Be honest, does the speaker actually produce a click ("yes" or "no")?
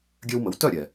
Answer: no